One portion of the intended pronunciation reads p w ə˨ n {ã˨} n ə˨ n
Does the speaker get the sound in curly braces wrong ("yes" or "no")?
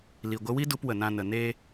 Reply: yes